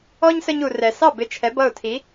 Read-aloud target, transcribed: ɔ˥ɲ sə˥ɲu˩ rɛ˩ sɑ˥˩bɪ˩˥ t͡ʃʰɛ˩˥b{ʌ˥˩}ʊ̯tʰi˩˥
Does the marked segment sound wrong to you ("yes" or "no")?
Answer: no